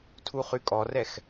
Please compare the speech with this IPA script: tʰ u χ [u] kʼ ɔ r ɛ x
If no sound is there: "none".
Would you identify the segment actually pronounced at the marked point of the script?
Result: y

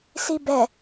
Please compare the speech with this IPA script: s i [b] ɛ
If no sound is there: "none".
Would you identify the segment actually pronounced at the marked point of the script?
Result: b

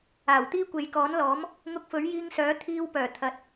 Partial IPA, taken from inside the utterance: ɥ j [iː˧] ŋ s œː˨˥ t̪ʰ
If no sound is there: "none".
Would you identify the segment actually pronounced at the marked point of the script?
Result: iː˧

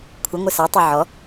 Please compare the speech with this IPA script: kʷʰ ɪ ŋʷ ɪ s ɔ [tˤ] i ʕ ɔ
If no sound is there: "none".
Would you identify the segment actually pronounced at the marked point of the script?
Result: tˤ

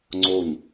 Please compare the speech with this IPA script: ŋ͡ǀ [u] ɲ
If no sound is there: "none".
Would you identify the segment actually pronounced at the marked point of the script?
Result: o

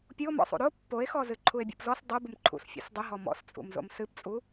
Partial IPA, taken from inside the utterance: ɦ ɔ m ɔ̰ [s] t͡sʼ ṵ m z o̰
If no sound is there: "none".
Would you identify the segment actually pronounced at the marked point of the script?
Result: s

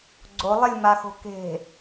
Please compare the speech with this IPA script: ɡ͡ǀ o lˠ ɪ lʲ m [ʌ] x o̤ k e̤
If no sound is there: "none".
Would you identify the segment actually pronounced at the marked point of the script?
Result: a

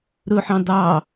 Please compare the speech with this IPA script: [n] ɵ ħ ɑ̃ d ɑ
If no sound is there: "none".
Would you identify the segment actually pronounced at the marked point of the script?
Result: ɾ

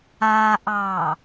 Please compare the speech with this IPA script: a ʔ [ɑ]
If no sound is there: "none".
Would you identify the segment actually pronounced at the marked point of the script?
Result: ɑ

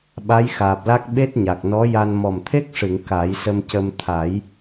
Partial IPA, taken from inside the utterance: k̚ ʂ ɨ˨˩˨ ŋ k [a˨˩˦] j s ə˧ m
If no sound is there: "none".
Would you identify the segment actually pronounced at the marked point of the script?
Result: a˨˩˦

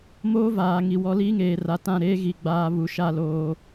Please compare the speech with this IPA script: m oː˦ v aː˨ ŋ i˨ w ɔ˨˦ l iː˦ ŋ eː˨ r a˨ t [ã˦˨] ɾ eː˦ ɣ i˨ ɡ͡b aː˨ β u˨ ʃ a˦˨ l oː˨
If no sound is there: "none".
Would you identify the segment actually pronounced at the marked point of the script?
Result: ã˦˨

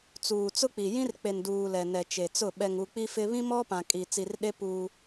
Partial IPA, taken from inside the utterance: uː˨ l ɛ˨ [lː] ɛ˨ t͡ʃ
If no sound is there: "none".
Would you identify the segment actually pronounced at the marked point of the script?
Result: n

